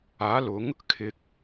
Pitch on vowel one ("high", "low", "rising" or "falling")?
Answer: rising